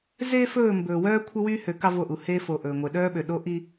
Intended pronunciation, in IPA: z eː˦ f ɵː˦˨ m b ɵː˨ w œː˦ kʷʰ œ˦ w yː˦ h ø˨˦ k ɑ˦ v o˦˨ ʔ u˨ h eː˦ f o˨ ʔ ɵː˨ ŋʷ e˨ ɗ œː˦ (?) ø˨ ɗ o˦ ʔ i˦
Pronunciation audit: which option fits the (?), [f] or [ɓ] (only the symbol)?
ɓ